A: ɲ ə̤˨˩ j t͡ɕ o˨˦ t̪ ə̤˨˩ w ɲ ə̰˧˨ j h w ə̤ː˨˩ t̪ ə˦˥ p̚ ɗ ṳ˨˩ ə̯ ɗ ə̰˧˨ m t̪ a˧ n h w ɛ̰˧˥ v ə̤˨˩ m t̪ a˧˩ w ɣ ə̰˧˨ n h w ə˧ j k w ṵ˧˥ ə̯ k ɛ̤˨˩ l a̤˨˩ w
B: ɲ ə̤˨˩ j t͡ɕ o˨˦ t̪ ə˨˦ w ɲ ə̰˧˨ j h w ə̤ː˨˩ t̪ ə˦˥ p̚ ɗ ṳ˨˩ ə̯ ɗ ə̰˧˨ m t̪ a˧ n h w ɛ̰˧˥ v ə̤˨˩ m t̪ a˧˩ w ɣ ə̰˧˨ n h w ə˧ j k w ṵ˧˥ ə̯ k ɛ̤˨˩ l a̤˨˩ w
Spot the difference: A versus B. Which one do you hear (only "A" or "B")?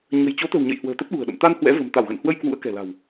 A